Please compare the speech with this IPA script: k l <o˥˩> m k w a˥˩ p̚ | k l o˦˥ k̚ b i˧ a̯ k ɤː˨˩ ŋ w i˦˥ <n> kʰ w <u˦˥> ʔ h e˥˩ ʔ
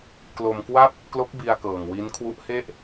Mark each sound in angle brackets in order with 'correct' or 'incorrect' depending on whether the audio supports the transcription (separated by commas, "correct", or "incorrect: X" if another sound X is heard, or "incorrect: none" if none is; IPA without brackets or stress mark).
incorrect: o˧, correct, correct